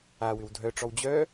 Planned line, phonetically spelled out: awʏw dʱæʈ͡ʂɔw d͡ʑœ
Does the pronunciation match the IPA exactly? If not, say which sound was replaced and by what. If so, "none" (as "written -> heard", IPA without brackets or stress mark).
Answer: æ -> œ